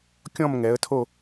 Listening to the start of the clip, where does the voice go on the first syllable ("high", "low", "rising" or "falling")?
falling